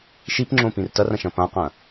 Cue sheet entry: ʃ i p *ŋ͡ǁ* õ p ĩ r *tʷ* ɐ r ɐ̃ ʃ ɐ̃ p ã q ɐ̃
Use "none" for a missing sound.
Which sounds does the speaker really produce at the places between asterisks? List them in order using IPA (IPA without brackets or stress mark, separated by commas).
ŋ͡ǁ, t